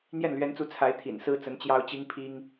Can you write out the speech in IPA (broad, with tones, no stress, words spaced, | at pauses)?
n̪jɛ˥˩nlɥɛ˧˥nt͡su˧˥ t͡sʰa˧˥ɪ̯ t̪ʰḭ˨˩nsɹ̩˥t͡sə˧˥n t͡ɕjɑ˥ʊ̯t͡ɕi˥ŋpʰi˥ŋ